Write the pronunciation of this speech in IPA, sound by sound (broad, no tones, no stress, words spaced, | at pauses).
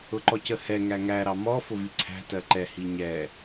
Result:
ʊǃɔcəhɛ ŋæŋæ ɾɑmɔ fʊviǀʰæ̤ tɜǃɛ hiɲɛ